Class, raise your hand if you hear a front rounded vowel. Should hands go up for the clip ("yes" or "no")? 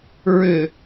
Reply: yes